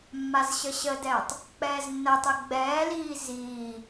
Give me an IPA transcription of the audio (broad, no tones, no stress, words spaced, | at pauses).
mːazɕəɕədɛːtˤ | k͡pɛːznːətˤɛ ɡ͡bɛːliː ziː